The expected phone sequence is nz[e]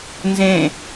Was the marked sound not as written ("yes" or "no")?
yes